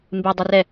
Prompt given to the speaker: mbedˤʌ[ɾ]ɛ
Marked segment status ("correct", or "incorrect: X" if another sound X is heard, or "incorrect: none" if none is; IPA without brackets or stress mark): incorrect: r